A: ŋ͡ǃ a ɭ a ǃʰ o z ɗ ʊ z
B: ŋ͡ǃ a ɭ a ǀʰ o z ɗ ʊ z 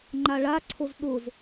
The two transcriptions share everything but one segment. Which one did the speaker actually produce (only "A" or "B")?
B